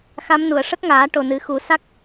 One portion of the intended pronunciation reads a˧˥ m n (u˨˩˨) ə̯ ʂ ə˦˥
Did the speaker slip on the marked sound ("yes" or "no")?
no